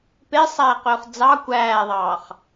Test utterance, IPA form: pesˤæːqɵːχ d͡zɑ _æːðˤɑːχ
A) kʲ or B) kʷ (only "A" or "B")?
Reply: B